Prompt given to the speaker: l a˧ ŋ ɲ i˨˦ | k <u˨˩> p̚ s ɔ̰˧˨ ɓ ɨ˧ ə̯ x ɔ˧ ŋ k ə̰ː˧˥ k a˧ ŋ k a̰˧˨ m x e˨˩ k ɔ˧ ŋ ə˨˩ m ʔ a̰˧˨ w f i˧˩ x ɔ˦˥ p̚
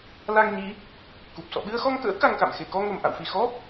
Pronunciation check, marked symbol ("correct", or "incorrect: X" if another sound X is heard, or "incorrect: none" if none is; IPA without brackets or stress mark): correct